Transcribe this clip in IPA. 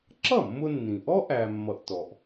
ǁ ʌ˥˩ mː ʊ˧ nː ĩ˩ ʔ ɔ˥ ʔ æ˧ mː ʌ˧ ʔ t ɔ˩ ʔ

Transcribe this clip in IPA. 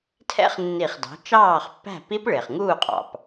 tʰ ɛ̰˦˥ χ nː i˧˩˧ χ d ɑ̤˩˥ t͡ʃ ɑː˥˩ χ pː æ̤˥˩ p i˦˥ p ɭ ɪː˩ χ ŋ uː˥˩ qʼ ɑ̰˩ p

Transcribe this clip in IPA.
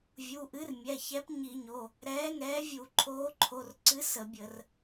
vʲ u˩˧˩ ʔ ɨ˨˥ r mʲ ɛ˩˧˩ ç ɛ˨˥ p ɲ i˧˩˧ ɲ o˩˧˩ | ɾ ɛː˨˥ ŋ ɛː˨˥ vʲ u˧˩˧ ǃʰ oː˨˥ ǃʰ o˩˧˩ r ǀ ɨ˨˥ s ə˧˩˧ bʲ ə˧˩˧ r

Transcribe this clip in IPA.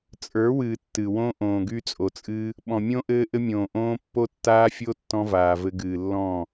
t͡sʼ ə˞˨˦ w ɨː˨ tː ɨ˨ w õ˦ ʔ õː˨ ɡ y˧ t͡sʼ o˨ t͡sʼ ɨː˧ | ɓ ɔ̃˨ mʲ õ˦ ʔ ɘː˦ ʔ ɘ˦ mʲ õː˨ ʔ õː˦ pː o˦ tː aː˦ fʲ o˦ tː ɔ̃˦ v aː˨ v ɘ˧ ɡ ɨː˨ lː ɔ̃˦˨

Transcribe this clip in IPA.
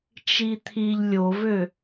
t͡ʃ i t̪ʰ i ʎ lʲ o v ø

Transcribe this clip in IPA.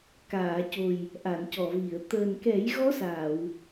k aː˨˩˨ c o˨˩ j | ʔ a˨˩˨ n c ɔ˨˩˨ v i˨˩˨ ə̯ t̪ əː˨˩ n k ɛ˨˩˦ j ɣ ɔ˧˥ s aː˨˩˨ w

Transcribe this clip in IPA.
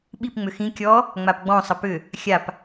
ɓ i p ŋ͡m ʏ x ĩ kʲ ɔ | ŋ͡m a p ɡ͡b ɔ̃ sˤ ə p ʏ | xʲ a p

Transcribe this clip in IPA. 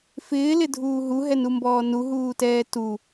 f ɪː l ɪ dʱ uː ɦ u ɦ ɛ n u m b ɔː n u ɦ uː t ɛː t u

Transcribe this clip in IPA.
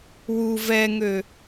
w u v ɛ ŋ ø

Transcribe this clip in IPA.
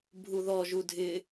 bʱ u ð ɔ ʒ u dʱ ɪ

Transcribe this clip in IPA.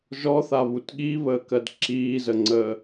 ʒ ɔ θ a β u t ɠ i β əː k ɜ d ǁ iː z ə ŋ͡ǀ əː

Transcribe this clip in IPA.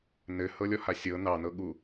n ɘ h ɤ lʲ ɔ h a sʲ ɤ n ɑ n ɤ ɠ u

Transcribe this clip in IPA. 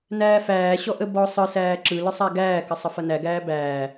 n æː f æː ɕ ɔ ʔ ə b ɔ sˤ ɯ s æː ǁ ɯ l ɯ sˤ a ɡ æː k ə sˤ ə f ɐ n æ ɡ æː b æː

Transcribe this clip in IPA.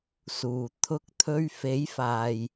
s uː˨˩ t̪ʰ ʊ˧ k̚ t̪ʰ ɵ˧ ɥ f e˨˥ j f aː˨ j

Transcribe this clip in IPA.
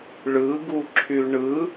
ɭ ɯ ɡ u ǁʰ y ɳ ɯ

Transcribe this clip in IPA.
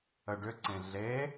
ə ɖ ʏ ǀ ẽ ɮ e

